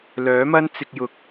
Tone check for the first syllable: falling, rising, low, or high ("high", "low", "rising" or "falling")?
rising